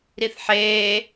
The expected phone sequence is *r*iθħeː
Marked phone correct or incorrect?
incorrect